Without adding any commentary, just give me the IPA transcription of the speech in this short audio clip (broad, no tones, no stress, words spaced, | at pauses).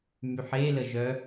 myħe ləʒœ